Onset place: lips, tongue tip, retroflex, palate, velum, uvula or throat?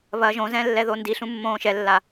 lips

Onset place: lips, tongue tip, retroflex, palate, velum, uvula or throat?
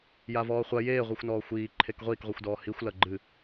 palate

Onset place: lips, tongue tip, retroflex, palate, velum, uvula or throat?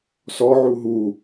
tongue tip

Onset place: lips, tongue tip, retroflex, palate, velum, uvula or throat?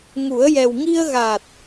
velum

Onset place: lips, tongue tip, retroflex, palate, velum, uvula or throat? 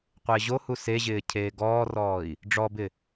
uvula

